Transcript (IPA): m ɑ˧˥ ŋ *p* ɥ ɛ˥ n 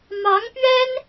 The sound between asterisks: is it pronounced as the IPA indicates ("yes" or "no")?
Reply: yes